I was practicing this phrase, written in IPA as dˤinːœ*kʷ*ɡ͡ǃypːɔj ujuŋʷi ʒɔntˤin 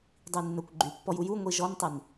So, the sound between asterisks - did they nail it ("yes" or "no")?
yes